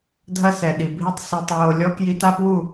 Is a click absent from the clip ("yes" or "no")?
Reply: yes